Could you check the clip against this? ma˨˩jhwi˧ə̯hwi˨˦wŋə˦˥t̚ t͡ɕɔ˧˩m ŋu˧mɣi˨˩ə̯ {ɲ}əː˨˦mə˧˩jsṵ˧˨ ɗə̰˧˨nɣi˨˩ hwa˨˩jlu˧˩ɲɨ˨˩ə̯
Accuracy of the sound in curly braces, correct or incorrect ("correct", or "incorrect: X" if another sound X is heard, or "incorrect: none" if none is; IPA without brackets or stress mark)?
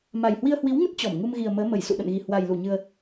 incorrect: m